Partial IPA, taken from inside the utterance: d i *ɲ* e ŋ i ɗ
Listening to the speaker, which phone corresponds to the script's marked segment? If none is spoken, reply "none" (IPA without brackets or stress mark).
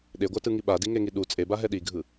ŋ